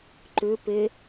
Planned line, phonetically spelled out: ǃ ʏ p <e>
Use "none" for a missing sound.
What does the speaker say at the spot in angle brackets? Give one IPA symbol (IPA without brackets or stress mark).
e